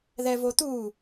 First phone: ð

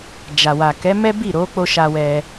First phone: d͡ʒ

